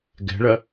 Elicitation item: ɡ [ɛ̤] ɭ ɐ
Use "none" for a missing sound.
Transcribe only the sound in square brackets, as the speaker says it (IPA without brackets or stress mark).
ɛ̤